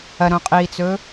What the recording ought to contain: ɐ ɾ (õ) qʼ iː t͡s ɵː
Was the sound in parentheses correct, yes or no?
yes